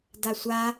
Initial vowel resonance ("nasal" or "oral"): oral